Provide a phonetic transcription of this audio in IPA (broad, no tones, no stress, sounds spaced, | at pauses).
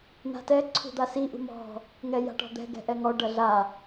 n̪ a̤ t ɛ ǀʰ ṳ d̪ a s i ʔ ṳ m ɔ̤ | ŋ ɛ j a̤ ʈ ɔ̤ d̪ ɛ̤ ɡ ɛ̤ ʔ ɛ ŋ ɔ ɖ ɐ ɮ a